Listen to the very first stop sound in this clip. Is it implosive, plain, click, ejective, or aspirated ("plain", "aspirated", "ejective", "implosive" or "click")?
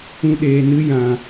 implosive